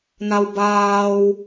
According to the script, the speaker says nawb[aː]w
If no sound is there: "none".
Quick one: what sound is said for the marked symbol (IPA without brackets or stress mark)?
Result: aː